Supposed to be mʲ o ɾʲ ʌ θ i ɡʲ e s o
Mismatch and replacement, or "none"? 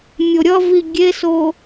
θ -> v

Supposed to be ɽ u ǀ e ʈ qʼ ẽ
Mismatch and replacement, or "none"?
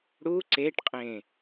none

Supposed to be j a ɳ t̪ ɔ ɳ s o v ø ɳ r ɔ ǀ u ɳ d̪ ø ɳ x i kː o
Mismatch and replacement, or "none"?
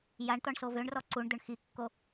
none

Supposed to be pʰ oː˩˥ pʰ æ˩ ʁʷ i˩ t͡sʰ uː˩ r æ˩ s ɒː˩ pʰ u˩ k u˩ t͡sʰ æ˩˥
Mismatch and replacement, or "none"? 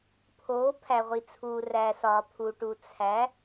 k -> ʈ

